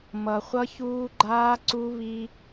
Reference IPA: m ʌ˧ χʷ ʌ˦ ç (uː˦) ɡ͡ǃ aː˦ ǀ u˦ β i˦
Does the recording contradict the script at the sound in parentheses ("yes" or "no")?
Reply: no